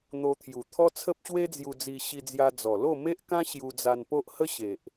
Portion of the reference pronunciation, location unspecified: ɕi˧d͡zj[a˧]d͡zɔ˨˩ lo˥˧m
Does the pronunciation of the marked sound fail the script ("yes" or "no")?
no